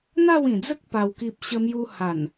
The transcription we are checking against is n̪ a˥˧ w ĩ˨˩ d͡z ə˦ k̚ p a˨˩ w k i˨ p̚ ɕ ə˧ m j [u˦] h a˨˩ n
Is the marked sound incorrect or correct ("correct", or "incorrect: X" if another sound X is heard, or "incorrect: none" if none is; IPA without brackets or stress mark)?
incorrect: u˧